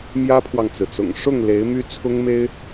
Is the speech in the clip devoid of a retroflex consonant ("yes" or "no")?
no